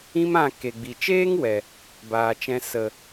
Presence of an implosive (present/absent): absent